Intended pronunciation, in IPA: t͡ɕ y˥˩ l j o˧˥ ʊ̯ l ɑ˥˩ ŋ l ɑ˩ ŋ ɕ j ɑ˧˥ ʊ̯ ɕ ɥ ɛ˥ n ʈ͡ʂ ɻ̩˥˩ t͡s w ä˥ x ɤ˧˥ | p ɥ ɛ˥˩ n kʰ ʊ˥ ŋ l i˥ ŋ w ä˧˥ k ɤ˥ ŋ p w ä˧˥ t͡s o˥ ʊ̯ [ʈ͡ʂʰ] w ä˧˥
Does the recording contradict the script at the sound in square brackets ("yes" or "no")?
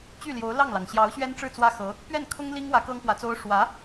yes